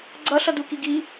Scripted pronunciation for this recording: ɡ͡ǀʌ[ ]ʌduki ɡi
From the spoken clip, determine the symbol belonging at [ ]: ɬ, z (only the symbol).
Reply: ɬ